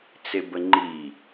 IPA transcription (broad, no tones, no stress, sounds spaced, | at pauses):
t͡s e b ə ŋ͡ǃ i